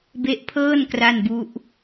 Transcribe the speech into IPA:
b e˦˥ ʔ pʰ ɤː˥˩ n k r a˥˩ n b u˦˥ ʔ

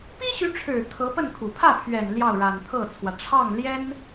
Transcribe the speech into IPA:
p i˥ ɕ y˧˥ ʈ͡ʂʰ ɻ̩˨˩ kʰ ɤ˧˥ p ə˥˩ n kʰ u˨˩ pʰ ä˥˩ pʰ ɥ ɛ˨˩ n l j ɑ˥˩ ʊ̯ ɻ a˨˩ n t̪ʰ ɤ˥˩ t͡sʰ w ä˩ ʈ͡ʂʰ ɑ˥˩ ŋ l j ɛ˥ n

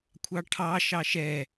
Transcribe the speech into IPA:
kʷʰ ɑ ʈʰ ɑ ʃ ɑ ʃ ɛ

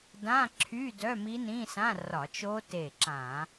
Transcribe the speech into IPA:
d ã˧˥˧ ǁʰ y˧˥˧ d œ˧˥˧ m i˦˥ n ĩ˧˥˧ s ã˧˥˧ r ɒ˧˩˧ t͡ʃ o˦˥ t e˧˩ ǁ ã˧˩˧

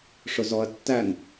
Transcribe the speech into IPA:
ʂ ʊ z ɔ ɐ̯ tː æ n

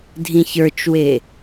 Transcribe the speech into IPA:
dʱ ĩ ç ə˞ t͡ʃ w e

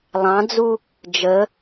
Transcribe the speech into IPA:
lˠ ɑ̃ d͡z u | d͡ʒ ə

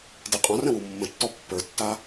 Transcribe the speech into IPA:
d i qʼ ɔ̃ r ə̃ w u mː ə̃ tː ɔ pː ə˞ tː a

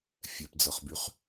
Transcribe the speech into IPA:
fʲ ɛ p d͡z ɤ χ b y χ

